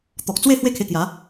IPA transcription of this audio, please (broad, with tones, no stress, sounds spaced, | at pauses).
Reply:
t̪ ɔ˨ k̚ t͡s w e˥˧ h w e˥˧ kʰ e˧ k j a˨˦